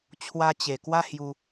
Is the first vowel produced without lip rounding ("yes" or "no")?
yes